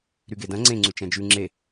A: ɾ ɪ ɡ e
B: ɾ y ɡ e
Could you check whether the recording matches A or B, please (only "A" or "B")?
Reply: B